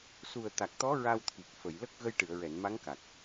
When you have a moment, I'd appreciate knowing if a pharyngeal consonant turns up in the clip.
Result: no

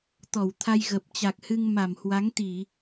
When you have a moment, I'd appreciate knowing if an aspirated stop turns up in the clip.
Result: yes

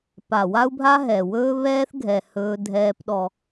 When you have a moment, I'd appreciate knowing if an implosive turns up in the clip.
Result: yes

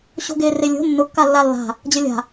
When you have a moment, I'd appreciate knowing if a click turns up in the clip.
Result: no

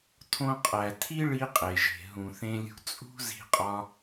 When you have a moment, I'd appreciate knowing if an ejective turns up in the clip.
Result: yes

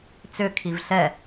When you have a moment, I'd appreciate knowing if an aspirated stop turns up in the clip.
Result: yes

